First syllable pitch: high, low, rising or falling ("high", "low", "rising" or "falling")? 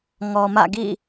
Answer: low